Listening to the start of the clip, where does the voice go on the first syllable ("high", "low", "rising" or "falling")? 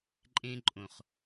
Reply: high